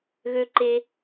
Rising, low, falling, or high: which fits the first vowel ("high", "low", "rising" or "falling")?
low